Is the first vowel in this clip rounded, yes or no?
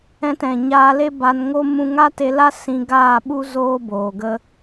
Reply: no